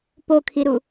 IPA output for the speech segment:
p o kʰ i ɾ u

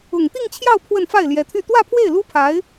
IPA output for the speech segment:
ʊ˨˩ ŋ t̪ i˥˧ ŋ t͡ɕʰ j ɑ˥˧ ʊ̯ pʰ w ə˥˧ n f a˥˩ ɪ̯ l j ɛ˧˥ t̪ʰ y˥˧ t̪ w ä˥˧ pʰ w e˥˩ ɪ̯ l u˥ pʰ a˧˥ ɪ̯

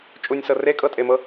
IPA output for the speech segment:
t͡ʃʼ u nʲ s ɤ r e kʼ ɤ tʼ e m ɤ

